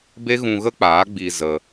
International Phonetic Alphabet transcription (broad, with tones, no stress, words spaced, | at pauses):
be˦ɣũ˧ɣə˦k͡paː˨˦ ɡ͡biː˧ zə˧